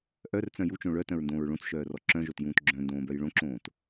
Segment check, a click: present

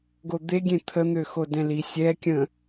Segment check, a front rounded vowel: present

